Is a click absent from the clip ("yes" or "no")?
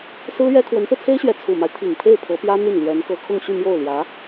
yes